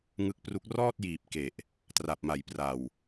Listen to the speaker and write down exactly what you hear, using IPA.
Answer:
ŋ ɯ˦˥ k̚ p r u˦˥ k̚ r ɔː˥˩ t̚ j iː˨˩ p̚ k e˨˩ ʔ | t r a˨˩ p̚ m a˩˦ j p r a˨˩ w

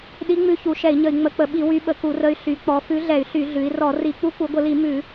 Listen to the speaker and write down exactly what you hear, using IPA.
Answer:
ɗ i˧˥ ŋ͡m ʉ˧˥ ç u˩˧ ʃ ɛ˧˩˧ i̯ ɲ ə˧˩˧ i̯ ŋ͡m ə˧˩˧ k͡p ə˧˩˧ ɓ i˧˩˧ w y˧˥ ɓ ə˧˩˧ k u˧˩˧ r ə˧˥ y̯ ɬ y˩˧ k͡p ɔ˩˧ f ʉ˧˥ ɮ ɛ˧˩˧ y̯ ɬ y˧˩˧ ɮ ʉ˩˧ i̯ r ɔ˧˩˧ r i˧˩˧ k͡p u˧˥ k u˩˧ ɡʷ ə˧˩˧ l i˧˩˧ m ʉ˧˩˧

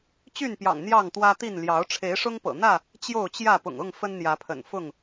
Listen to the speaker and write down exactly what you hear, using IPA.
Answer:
t͡ɕ y˥˨ n p j ɑ̰˨˩ ŋ n̪ j ɑ˥˨ ŋ t̪ w ä˦ t̪ i˥˨ n l j ɑ˨˦ ʊ̯ ʈ͡ʂʰ e˨˦ ɪ̯ ʂ ʊ˦ ŋ p ɤ̰˨˩ n̪ ä˥˨ | t͡ɕ j o˥˨ ʊ̯ t͡ɕ j ä˥˨ p ʊ̰˨˩ ŋ ʊ˥˨ ŋ f ə˦ n n̪ j ä˨˦ pʰ ə̰˨˩ n f ʊ˥˨ ŋ

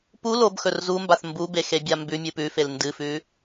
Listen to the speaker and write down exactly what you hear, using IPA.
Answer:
p u l o b x ɵ r z u m b a θ m b u b e x e bʲ a m b ʉ mʲ ɨ p ʉ f e l n d ɨ f ʉ

